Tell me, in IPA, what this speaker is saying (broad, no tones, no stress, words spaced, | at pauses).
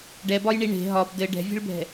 ɖɛbɒjɳi ɳe̤ ɦɒb dɘ ɖɛ̤vʲe̤ɭbʱɛ̤